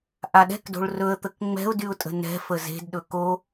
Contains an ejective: yes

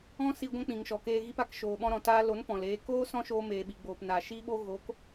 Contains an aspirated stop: no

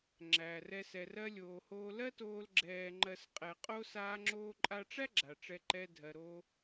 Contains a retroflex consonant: yes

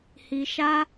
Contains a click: no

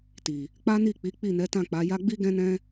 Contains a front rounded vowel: no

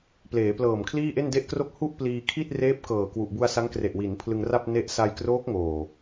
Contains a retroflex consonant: no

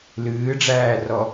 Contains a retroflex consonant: yes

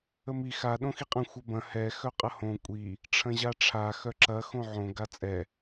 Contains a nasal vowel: yes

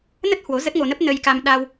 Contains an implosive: yes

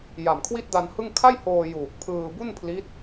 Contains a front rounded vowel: no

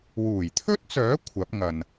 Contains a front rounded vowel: yes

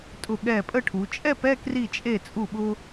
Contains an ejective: yes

